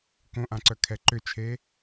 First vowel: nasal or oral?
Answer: nasal